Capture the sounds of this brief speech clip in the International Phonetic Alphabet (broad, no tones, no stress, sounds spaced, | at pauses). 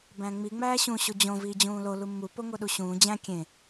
b æ̃ ŋ͡m i ŋ͡m æː ɕ ũ ɕ o d͡ʑ õ v iː d͡ʑ ũː l o l u mː u p o ŋ o ɗ u ɕ ũː d͡ʑ æ̃ kʲ ẽ